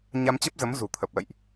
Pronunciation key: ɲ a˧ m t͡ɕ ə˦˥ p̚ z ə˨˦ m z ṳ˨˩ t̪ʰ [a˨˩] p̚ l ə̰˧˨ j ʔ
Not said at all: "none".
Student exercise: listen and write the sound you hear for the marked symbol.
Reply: ə˨˩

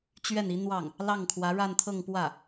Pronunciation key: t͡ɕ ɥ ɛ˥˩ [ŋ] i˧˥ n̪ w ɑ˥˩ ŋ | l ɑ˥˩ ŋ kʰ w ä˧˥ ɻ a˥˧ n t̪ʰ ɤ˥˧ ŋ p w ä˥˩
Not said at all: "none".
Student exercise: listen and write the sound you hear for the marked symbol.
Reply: n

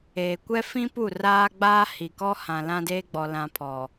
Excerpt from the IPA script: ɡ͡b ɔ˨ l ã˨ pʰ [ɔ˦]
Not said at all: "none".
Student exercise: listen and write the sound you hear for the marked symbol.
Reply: ɔ˨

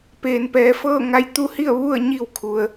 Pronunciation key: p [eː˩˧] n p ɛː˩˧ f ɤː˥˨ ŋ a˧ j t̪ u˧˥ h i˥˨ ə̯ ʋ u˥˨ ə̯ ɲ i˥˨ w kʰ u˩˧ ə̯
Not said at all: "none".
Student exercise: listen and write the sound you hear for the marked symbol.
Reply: eː˩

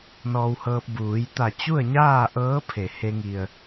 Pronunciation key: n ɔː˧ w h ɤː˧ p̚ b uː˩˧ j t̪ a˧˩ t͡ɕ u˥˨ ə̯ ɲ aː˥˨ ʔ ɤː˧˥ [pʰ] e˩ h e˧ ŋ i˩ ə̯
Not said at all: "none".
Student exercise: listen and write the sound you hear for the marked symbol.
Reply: pʰ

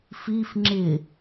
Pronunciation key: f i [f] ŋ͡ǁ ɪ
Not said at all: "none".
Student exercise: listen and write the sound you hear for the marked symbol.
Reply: f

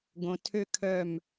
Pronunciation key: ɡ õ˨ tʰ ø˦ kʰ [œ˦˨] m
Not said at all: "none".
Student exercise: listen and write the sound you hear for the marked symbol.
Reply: œ˦˨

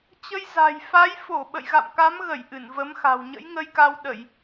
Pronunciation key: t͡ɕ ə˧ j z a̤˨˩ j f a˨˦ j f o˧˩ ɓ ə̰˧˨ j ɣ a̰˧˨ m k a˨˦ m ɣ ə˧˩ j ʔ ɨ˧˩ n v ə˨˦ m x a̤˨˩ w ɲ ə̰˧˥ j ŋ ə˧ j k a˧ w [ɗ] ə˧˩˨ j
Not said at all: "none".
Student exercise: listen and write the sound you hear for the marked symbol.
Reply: ɗ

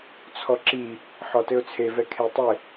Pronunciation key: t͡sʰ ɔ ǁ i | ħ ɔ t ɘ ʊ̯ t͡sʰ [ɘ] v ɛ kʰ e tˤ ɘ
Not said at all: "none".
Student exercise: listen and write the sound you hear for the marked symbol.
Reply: e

